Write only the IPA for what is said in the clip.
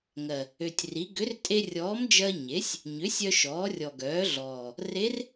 ŋɜ˨˩ | ø˨˩tʲri˩˥ ɡʏ˩˥rtʼe˧rʲɔː˩˥md͡ʒɜ˧ ɲe˩˥sʲ | ɲʏ˩˥sʲœ˧ ʃɔː˩˥rʲɔ˨˩ɡœː˩˥ɮɔː˨˩ | re˧˥r

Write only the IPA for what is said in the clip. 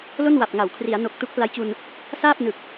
lo˥˩n wa˨˩p̚ ŋa˩˦wkʰri˩˦a̯no˨˩k̚ tu˦˥k̚pla˦˥jt͡ɕu˧n | saː˥˩p̚nɯ˨˩k̚

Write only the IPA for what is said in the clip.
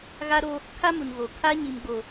ɣa˦ɾo˦ | kʰa˦mu˨nɣo˨ kʰa˦ ɲi˨mɡ͡bo˨

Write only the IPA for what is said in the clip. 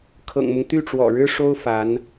kʰɤ̰˨˩ŋmʊ˦ŋ t̪y˥˩ʈ͡ʂwɔ̰˨˩ɻɻ̩˥ ʂo˥ʊ̯ fa˧˥n

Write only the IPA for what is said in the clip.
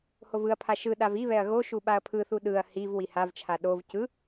hovɯɐ̯pʰa ʃɯ ɗaviβɛɐ̯ ɣoʃu ɓaɐ̯pʰɯθu ɗɯɐ̯ hiv wihavt͡ʃʰa ɗov cɯ

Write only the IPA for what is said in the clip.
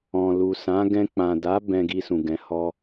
ɔ̃˨lu˨sã˨˦ ɡɛ̃˧ k͡pã˨da˨˦ bɛ̃˧ɡi˧sũ˨ ɡɛ̃˨˦hɔ˦

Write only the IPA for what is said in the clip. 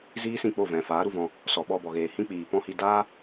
ziː˦sĩ˦˨k͡po˦˨ vɛ̃˨faː˨˦ɾu˧vɔ̃˧ | sɔ˨ɓɔ˧bɔ˨ɣeː˨ hĩ˦k͡piː˨pɔ̃˦hi˧ daː˦

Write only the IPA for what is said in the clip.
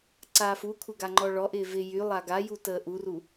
ǀaːfukʷʰɪ ɡaŋ͡ǃɔɭɔʔɪː vɪ jy lˠaɡaju təːʔuru

